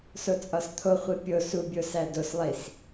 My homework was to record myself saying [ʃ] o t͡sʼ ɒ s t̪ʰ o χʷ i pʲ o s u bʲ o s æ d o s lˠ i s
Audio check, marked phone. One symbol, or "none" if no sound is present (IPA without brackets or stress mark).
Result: s